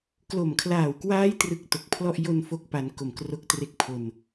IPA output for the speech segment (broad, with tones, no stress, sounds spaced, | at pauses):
k l o˨˩ m kʰ l aː˨˩ w k w aː˦˥ j t r ɯ˦˥ k̚ t o˨˩ k̚ pʰ l ɔ˥˩ ʔ j o˧ n f o˨˩ k̚ p a˩˦ n k o˨˩ m k r o˦˥ k̚ t r e˦˥ k̚ pʰ o˧ n